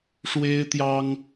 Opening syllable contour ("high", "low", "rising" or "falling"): high